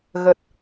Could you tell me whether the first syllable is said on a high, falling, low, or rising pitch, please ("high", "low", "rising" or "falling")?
low